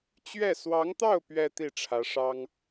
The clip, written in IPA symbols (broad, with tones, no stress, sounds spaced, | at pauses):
t͡ɕ ɥ ɛ˥˩ s w ɑ˧˥ ŋ t̪ ɑ˥˩ ʊ̯ p ɥ ɛ˥ t̪ i˥˩ ʈ͡ʂʰ ä˧˥ ʂ ɑ˥ ŋ